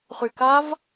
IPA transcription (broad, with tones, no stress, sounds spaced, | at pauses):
χ y˨˩ k a˦˥ v